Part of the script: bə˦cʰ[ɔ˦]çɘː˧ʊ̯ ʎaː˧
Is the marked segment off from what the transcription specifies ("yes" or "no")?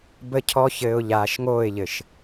no